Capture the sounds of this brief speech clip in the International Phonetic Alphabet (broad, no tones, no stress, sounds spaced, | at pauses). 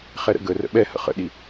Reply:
χ ɛ ɾ ə̰ ɡ ə r ə̰ ɓ ɛ h ə̰ χ ə̰ ɗ i